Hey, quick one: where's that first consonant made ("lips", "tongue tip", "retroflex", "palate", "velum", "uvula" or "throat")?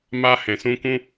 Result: lips